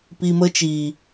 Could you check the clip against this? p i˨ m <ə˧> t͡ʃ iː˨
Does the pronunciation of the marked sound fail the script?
no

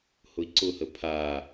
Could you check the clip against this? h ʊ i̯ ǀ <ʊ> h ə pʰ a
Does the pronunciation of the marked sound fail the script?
no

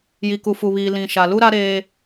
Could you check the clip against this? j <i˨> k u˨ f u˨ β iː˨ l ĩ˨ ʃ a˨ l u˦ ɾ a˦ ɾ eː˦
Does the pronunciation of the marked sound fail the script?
no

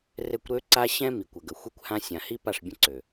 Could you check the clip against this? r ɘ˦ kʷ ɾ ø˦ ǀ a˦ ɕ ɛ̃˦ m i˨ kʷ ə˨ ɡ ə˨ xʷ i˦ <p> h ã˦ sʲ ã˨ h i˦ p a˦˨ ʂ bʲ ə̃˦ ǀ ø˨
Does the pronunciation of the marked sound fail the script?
yes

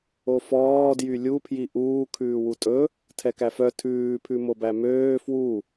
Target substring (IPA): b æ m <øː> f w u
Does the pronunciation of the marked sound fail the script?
no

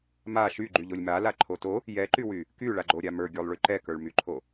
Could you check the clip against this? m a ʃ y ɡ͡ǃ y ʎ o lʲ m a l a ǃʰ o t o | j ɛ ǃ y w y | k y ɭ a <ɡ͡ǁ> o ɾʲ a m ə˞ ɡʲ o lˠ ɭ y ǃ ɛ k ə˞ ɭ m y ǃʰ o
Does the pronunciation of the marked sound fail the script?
yes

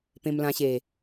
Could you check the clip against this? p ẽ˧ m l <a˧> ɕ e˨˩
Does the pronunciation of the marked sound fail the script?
yes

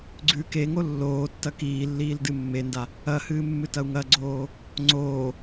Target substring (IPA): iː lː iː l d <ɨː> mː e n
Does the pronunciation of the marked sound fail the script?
yes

